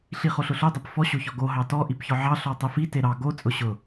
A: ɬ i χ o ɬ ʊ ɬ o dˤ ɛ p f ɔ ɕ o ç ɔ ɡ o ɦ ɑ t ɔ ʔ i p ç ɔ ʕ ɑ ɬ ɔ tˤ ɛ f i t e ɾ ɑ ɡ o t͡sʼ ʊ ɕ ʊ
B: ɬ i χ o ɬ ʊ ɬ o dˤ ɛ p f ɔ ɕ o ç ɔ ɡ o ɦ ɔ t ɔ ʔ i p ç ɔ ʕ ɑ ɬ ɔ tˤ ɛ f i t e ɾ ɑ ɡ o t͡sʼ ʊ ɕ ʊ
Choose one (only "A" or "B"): A